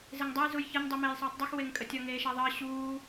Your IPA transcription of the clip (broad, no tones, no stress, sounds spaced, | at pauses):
z e ŋ dˤ ʌ j z u j ç ʌ ɲ dˤ u m eː j sˤ uː tˤ dˤ u x w e ŋ kʼ ə tʲ ʌ ŋ eː ʃ a ðˤ əː ɕ uː